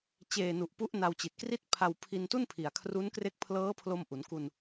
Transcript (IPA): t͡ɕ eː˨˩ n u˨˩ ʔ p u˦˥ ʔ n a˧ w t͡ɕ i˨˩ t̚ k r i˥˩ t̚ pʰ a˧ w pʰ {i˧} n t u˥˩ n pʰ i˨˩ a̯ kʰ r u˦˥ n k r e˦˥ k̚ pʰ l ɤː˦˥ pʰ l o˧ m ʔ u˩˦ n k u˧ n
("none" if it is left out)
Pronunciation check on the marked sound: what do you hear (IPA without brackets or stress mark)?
i˧